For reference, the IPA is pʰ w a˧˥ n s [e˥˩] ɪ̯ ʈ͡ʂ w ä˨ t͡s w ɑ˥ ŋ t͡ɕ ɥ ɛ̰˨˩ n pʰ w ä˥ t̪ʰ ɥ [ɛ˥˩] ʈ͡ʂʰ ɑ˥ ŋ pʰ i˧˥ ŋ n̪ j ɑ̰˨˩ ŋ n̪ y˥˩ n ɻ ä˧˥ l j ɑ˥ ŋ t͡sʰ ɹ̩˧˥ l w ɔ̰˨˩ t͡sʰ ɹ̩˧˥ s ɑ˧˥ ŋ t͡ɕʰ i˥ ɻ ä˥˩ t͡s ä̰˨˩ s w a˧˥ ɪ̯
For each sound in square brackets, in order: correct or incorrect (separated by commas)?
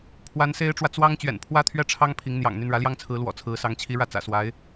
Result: incorrect, correct